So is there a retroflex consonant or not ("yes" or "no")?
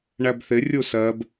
yes